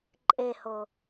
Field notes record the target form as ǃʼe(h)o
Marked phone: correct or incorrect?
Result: correct